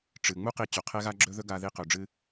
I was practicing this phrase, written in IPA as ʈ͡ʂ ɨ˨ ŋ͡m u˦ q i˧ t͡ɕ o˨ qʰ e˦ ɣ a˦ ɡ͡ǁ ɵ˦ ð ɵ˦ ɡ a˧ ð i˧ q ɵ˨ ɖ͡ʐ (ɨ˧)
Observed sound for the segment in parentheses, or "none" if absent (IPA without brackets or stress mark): ɨ˧